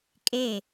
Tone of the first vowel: falling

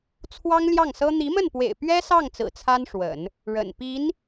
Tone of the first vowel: high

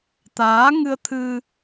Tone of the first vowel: rising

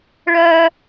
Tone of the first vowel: high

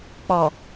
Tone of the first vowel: low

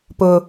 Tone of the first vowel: high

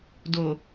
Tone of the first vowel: low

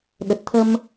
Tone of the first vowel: low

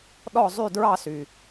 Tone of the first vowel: falling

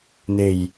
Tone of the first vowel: low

